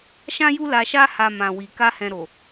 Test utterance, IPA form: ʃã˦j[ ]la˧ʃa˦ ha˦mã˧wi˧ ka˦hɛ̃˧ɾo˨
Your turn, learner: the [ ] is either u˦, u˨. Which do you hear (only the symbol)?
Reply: u˦